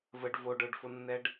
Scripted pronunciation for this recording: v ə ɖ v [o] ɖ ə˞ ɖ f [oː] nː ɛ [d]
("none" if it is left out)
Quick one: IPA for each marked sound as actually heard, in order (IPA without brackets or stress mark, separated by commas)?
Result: o, o, ɖ